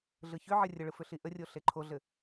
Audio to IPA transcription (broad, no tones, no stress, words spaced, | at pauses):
ɮɯçʏʕɘ rʲəɭɯ fʏɬiʔərʲo ɬeǃʰoɮɘ